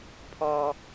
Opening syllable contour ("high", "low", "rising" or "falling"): low